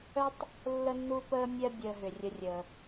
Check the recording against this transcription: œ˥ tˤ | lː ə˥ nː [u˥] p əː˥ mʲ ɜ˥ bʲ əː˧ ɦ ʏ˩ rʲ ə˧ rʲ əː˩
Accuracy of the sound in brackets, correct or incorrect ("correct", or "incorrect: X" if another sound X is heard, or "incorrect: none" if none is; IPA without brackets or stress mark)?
correct